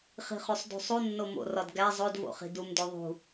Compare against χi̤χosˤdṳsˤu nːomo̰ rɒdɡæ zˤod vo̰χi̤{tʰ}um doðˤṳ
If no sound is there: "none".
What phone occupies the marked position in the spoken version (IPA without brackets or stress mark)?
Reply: d